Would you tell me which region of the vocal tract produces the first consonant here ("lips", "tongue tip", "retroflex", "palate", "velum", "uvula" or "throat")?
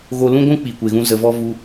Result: velum